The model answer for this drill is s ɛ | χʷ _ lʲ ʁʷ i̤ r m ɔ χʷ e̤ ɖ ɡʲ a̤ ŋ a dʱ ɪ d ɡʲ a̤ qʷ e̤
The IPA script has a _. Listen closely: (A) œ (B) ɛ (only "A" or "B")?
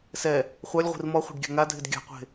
A